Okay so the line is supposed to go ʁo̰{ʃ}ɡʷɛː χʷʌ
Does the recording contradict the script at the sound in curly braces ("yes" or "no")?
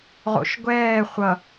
no